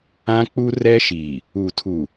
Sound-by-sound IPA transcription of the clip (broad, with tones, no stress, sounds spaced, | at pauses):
ã˦ k͡p u˦ r ɛ˦ ʃ i˨ | u˨ tʰ u˨